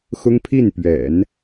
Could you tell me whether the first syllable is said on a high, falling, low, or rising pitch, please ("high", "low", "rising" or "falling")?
high